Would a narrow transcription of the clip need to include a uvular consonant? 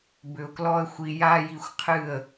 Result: yes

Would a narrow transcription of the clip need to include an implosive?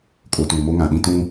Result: yes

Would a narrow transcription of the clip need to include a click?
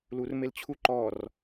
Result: yes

